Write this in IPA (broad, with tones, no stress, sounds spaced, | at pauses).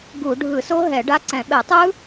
ɡ u˧˩˧ ɖʱ ɯ˧˩˧ s o˦˥ ɦ ɛ˧˩˧ ɖ a˦˥ ǀ ɛ̃˧˩˧ ɓ ɛ˧˩˧ tˤ ɯ˦˥